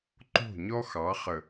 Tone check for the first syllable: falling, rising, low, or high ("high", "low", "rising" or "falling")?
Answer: falling